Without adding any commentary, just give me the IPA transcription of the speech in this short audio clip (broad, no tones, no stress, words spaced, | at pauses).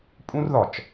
pʼũr ðɒt͡ʃ